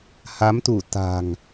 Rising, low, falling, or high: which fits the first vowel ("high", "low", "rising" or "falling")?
rising